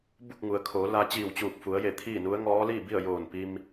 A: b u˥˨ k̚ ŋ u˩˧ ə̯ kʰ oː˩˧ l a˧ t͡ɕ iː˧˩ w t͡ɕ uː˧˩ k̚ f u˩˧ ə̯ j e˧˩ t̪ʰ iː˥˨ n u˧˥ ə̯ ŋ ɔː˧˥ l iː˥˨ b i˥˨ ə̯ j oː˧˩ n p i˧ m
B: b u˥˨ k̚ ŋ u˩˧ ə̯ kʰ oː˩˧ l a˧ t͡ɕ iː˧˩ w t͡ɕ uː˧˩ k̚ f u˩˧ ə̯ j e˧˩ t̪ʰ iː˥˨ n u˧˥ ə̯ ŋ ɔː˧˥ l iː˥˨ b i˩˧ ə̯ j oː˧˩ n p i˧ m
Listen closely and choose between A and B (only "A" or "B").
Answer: A